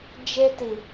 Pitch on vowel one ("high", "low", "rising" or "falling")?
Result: high